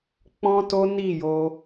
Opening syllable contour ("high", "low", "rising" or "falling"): high